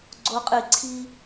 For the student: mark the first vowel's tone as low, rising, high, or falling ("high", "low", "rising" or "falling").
high